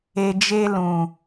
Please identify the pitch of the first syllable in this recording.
low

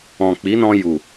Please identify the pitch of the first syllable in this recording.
low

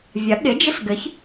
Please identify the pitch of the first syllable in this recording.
rising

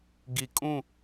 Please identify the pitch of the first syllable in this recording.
low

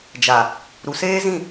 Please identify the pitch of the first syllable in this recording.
low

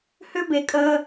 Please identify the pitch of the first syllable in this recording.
high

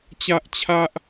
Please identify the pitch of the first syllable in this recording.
high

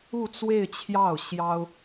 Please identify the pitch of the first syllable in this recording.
falling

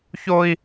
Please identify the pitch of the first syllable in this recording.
high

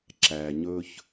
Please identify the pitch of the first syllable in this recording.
low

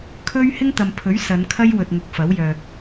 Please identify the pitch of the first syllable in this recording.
high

